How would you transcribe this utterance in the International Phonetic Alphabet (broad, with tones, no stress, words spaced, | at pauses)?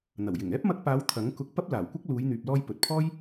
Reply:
n̪ɐ˨˩wjɪ˨˩ŋ ɛː˥p̚mɐ˧k̚paː˨˧w t̪ʰɐ˨˥ŋkʊ˧k̚ pɐ˥p̚laː˨˩wkʷɐ˥k̚ luː˨˧jn̪yː˨p̚lɔː˧j pɵ˨t̚pʰɔː˥j